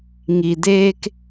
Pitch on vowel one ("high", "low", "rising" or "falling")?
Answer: low